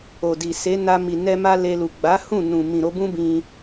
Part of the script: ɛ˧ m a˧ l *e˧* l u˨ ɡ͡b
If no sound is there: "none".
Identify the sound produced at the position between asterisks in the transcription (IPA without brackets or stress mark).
e˧